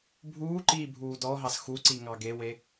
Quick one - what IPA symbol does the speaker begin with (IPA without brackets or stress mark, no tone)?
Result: bʱ